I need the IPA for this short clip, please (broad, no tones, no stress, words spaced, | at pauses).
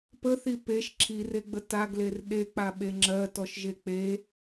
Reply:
pəθi peʃ ǁʰireɡ͡bə taɡler ɗek͡paɓe ŋ͡ǁɜtɔʃʒe k͡pe